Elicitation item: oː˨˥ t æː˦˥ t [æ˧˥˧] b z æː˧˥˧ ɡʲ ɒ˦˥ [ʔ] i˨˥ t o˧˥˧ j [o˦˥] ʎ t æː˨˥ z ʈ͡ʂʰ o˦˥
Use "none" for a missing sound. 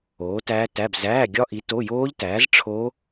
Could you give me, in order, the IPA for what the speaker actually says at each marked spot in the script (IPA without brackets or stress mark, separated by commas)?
æ˧˥˧, ʔ, oː˦˥